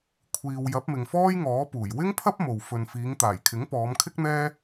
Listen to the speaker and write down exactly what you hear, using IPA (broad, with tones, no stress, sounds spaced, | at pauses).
kʷʰ iː˨ w j ɐ˨˥ p̚ m ɪ˨ ŋ f ɔː˥ j ŋ ɔː˨˥ p uː˨˩ j w ɪ˥ ŋ pʰ ɐ˥ p̚ m o˨ w f ɵ˧ n f iː˨˧ ŋ t̪ aː˨˩ j kʰ ɪ˨˥ ŋ p ɔː˨˧ m kʰ ɪ˥ k̚ n̪ ɛː˥